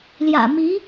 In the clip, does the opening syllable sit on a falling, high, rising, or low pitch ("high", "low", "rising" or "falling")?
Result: low